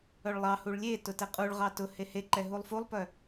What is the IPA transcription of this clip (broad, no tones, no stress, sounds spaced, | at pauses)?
œ ɭ lˠ ɑ h u ɭ lʲ e t ʊ t ɛ qʼ u ɭ ʁ ɑ t ʊ h e h e ǃ ɛ ɦ u lˠ f u lˠ p œ